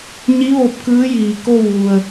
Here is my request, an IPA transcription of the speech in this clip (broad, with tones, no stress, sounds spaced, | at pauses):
ɲ i˧˥ ʋ o˧ p̚ k ɯː˧˥ j iː˩ k o˥˨ w ʋ u˩ ə̯